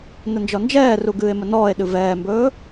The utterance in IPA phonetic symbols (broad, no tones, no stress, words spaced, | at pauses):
nənd͡ʒɔnd͡ʒɛːru ɡɨːe̯mənɔːe̯ɗɨ vɛːmbɵː